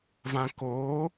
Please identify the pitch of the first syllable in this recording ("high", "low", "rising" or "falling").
high